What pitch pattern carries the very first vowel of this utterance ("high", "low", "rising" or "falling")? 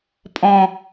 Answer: low